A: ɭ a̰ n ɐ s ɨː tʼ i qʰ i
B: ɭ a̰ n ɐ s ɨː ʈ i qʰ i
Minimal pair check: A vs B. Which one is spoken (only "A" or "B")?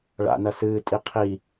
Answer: A